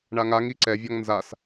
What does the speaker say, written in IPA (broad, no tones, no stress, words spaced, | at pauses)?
ɳaŋaŋi ǀɛvʲɔŋ nzas